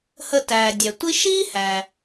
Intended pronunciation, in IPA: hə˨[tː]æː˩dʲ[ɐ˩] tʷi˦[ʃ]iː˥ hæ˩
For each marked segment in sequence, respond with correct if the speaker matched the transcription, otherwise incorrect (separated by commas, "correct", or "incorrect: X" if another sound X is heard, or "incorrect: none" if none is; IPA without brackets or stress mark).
incorrect: t, incorrect: æ˩, correct